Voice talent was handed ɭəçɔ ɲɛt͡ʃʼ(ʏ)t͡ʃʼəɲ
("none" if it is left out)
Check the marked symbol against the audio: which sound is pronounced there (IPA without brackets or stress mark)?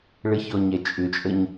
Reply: ʏ